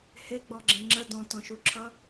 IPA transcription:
heɡ͡bɔɡ͡ǁẽ ŋ͡ǁə dɔ̃tɔ̃ʃuǁʰʌ

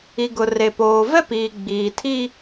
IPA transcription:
i˨ɡʊ˨ re˨poː˨ vɛ˦piː˨ɡ͡biː˨tʰi˦

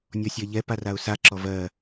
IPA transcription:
nʲɔsʲɜʎɛ paraʊ̯sa ǁɔvɜ

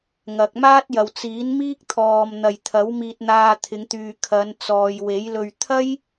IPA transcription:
ŋɐ˨k̚maː˥t̚jɐ˨w t͡siː˨˥nmiː˥k̚ t̪ʰɔː˨mn̪ɐ˨jt̪ʰɐ˨˥w miː˧t̚n̪aː˧t̪ʰɪ˨˧ŋt̪yː˨ kʰɐ˨˧nt͡sɔː˨j we˨˥jlɵ˧ɥ t̪ʰɐ˥j

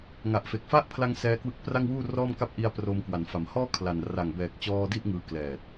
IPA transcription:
ŋa˨˩ʔfe˨˩k̚fa˦˥ʔpʰla˧ŋ sɛː˦˥kwɯ˦˥k̚pra˥˩ŋwuː˥˩ rɔː˥˩mka˥˩p̚ ʔi˧a̯ proː˧mkwa˩˦nfa˩˦mhɔː˥˩ kʰla˨˩n ra˨˩ŋbɛː˨˩k̚t͡ɕɔː˧ di˥˩ʔŋɯː˧klɛː˨˩t̚

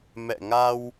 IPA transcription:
mɛ̰˧˨ŋa˧w

